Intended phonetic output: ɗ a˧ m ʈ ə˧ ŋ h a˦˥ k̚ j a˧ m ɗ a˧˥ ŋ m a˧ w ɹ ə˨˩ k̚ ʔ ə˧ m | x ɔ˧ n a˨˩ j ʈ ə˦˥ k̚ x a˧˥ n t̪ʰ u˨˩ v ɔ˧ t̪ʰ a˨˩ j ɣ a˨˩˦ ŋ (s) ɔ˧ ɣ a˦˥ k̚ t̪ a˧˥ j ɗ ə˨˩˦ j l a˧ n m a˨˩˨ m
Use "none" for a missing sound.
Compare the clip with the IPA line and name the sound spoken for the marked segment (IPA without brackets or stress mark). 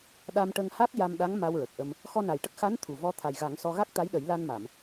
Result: s